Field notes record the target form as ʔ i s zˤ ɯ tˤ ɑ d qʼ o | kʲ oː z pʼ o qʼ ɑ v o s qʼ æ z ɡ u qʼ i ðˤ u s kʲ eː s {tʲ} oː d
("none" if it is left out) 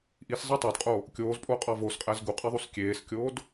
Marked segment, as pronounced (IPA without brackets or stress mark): kʲ